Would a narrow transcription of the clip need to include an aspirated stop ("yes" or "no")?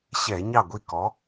no